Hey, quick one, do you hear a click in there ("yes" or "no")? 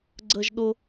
yes